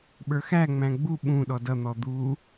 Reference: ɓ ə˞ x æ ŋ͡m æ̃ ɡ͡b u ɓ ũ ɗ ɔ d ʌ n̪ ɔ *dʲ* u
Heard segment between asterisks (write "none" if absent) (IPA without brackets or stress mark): d̪